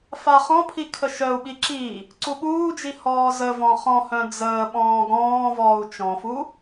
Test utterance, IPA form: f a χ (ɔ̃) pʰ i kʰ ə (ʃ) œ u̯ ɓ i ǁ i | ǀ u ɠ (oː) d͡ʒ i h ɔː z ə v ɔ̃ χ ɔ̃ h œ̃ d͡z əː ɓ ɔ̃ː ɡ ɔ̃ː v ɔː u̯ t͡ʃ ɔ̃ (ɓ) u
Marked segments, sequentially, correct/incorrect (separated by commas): correct, correct, incorrect, incorrect